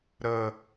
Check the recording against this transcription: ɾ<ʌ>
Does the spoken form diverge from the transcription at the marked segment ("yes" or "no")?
yes